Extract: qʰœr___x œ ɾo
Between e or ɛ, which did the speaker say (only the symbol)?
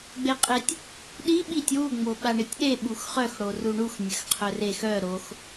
e